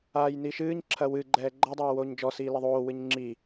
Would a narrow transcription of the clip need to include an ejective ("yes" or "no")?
no